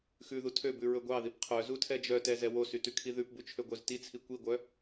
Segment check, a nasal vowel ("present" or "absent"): absent